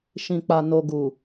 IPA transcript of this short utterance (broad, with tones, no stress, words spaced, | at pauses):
ʃĩ˨k͡pa˨ no˨ ɡu˨